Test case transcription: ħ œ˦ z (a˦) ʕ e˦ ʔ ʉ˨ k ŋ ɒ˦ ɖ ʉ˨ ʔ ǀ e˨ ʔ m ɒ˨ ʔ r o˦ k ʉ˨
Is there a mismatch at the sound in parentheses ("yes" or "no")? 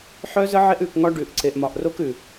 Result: yes